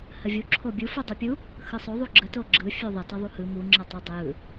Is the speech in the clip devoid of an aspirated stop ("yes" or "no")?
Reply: no